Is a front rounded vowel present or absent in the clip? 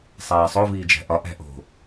absent